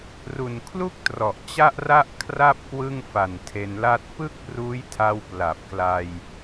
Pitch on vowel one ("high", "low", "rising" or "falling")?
low